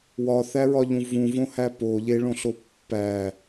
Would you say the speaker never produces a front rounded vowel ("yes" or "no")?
yes